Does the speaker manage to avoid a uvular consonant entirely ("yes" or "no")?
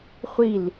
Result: no